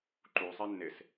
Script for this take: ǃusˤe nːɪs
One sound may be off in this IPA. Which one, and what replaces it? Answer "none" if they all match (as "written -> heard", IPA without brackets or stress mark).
none